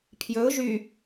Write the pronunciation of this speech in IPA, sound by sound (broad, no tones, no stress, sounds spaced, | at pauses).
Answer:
pʰ j ɵ ʊ̯ ʒ y